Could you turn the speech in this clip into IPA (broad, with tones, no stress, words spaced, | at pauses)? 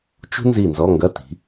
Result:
t͡ʃṳ˥ nzi˦˨nzɔ˧˥˧ ŋɡɐ˧˥˧ ti̤˨˦